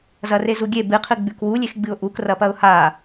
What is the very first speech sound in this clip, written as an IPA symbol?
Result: z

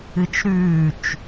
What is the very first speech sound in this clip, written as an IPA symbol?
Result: ɨ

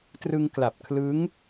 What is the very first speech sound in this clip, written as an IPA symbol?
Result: t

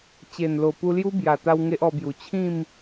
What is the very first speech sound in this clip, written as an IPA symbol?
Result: t͡ɕ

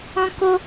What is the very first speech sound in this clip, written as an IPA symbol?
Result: ɔ̃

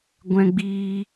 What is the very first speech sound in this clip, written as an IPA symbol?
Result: ɡʷ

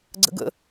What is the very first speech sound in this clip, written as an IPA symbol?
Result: ɡ͡ǀ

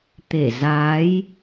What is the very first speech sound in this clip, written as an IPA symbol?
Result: t̪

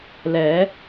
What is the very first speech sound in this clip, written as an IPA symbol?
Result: l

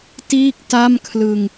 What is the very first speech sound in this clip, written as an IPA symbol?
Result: t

